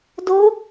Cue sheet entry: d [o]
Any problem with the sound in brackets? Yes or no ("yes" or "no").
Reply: no